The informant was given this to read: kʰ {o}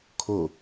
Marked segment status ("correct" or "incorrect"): correct